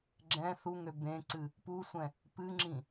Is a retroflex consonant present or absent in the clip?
absent